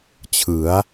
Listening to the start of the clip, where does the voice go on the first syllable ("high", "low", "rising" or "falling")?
rising